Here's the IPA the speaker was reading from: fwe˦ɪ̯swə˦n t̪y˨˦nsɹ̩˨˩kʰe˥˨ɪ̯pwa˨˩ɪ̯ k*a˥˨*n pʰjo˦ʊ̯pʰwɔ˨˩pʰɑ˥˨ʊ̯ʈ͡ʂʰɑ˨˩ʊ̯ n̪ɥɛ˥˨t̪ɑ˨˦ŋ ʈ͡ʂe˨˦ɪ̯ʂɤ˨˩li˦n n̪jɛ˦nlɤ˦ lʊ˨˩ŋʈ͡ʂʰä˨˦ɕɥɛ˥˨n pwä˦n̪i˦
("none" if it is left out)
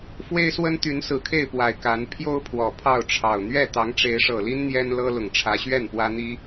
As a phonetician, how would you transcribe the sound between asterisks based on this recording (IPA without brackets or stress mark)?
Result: a˨˦